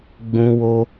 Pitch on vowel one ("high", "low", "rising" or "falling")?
high